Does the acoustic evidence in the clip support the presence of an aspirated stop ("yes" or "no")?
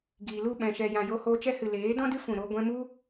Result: no